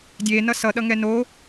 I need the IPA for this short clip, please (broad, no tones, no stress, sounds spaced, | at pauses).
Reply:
dʲ e n ʌ s ʌ ɗ ʌ ŋ ɛ n o